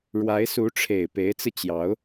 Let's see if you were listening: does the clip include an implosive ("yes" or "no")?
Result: no